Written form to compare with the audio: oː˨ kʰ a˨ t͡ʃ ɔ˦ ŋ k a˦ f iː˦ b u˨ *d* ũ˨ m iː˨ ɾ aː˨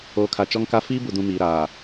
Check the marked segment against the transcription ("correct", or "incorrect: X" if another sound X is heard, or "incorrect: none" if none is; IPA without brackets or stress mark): correct